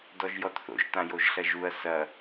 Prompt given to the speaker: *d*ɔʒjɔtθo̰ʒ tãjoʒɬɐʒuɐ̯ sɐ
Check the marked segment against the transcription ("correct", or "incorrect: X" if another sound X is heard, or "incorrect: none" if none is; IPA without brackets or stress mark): correct